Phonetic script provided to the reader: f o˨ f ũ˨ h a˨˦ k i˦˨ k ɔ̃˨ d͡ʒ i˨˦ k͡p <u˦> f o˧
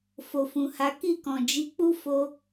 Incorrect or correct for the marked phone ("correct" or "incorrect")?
correct